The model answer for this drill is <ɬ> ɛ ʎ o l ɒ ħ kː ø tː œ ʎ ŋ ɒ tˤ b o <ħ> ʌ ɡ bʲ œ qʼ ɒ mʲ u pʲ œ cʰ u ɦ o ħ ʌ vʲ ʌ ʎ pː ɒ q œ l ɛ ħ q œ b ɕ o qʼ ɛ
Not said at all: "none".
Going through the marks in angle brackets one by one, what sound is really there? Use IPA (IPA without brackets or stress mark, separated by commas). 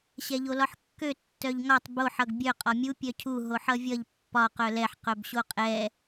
ɕ, ħ